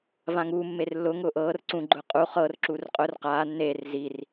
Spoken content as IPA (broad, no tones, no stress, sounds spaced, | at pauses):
v ã ŋ uː mː e r lː ʊ ŋ ʊː ʔ ɤː r ǀ ũ ɡ͡ǃ ʊː qʼ u χ ɤː r ǁ uː r qʼ ʊ r q aː nː eː r z i r